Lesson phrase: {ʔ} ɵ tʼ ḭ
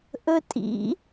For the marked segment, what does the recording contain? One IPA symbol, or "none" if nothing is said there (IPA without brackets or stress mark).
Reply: ʔ